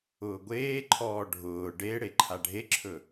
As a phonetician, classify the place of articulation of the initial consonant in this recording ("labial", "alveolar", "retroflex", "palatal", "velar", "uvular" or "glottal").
velar